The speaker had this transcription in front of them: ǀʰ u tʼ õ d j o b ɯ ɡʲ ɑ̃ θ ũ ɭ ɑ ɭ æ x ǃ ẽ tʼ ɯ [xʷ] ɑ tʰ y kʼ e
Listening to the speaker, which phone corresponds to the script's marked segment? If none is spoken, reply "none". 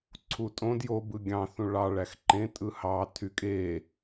h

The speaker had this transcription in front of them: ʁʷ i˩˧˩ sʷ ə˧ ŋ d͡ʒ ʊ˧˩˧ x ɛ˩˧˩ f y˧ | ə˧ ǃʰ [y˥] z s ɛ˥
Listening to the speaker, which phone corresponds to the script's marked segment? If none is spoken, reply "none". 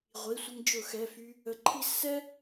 i˥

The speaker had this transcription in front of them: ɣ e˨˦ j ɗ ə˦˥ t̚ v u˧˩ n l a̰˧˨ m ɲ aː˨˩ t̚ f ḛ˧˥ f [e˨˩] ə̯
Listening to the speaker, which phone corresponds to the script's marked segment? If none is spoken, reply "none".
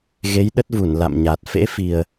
i˨˩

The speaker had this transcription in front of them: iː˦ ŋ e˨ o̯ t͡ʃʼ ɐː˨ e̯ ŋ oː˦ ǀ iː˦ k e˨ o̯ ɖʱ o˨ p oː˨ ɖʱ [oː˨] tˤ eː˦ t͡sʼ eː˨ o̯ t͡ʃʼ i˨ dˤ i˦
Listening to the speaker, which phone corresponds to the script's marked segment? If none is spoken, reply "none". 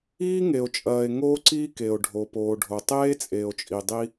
o˨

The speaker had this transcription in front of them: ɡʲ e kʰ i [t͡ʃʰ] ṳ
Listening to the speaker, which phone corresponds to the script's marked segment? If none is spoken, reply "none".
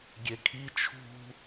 t͡ʃʰ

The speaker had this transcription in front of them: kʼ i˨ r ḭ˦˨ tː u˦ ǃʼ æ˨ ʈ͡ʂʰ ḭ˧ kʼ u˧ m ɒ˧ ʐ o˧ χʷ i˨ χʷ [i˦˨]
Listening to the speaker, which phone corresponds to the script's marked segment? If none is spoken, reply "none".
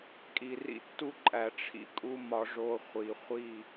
i˦˨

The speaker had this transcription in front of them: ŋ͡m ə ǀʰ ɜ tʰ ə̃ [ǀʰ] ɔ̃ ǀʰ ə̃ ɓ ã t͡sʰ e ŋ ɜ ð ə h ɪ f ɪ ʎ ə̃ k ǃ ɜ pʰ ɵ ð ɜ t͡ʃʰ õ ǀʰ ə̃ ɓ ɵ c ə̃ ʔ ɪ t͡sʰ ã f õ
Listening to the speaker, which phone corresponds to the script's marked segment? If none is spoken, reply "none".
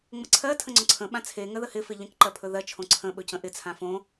ŋ͡ǀ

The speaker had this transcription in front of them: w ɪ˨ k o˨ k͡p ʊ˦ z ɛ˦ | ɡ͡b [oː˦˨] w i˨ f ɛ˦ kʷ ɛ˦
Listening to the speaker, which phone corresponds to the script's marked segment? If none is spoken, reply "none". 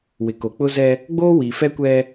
oː˦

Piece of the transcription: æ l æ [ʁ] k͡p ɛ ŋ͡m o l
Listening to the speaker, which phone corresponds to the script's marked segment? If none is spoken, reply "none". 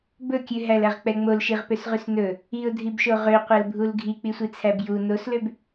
ʁ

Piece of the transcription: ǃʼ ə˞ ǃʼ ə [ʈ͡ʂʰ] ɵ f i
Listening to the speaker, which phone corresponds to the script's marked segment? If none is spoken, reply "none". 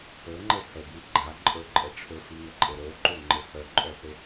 ʈ͡ʂʰ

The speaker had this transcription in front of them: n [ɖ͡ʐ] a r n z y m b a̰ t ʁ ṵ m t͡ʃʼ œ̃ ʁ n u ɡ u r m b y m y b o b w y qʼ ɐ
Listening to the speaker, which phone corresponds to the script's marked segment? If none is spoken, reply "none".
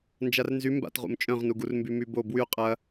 d͡ʒ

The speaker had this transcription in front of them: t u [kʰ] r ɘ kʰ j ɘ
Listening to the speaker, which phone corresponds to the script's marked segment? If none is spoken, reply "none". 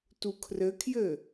kʰ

